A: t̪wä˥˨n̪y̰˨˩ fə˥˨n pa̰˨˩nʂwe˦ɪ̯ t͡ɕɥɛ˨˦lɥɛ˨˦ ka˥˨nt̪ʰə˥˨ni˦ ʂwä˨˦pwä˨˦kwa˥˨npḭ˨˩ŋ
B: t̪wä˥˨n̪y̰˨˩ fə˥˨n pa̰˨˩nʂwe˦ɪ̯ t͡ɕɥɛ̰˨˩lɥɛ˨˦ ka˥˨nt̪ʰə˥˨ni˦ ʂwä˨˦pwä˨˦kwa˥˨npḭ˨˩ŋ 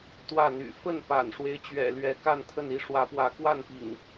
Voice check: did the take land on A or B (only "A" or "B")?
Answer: B